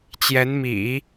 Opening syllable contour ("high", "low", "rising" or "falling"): rising